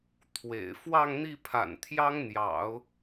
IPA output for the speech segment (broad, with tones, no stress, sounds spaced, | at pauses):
t̪ʰ w ḛ˨˩ ɪ̯ f w ɑ˥˧ ŋ n̪ i˥˩ pʰ a̰˨˩ n t̪ʰ j ɑ˥ ŋ n̪ j ɑ̰˨˩˦ ʊ̯